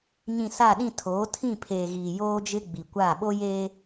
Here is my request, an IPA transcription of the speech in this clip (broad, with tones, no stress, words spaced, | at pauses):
ɲĩ˨ sa˦˨ɗĩ˦˨tʰoː˨˦ tʰĩ˦˨pʰeː˨ɣiː˨ joː˦d͡ʒɪ˦ ɡ͡bi˨kʷaː˦˨ ɓo˦jeː˦